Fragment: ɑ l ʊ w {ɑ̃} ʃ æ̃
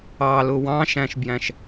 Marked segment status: correct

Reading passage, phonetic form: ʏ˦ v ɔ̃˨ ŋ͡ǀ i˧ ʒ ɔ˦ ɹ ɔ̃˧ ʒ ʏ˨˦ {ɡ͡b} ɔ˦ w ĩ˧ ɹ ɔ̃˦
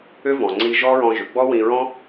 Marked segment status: correct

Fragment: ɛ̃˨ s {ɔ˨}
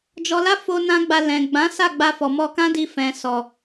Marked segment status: correct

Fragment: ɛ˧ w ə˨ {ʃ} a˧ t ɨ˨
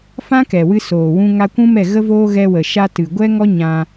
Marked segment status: correct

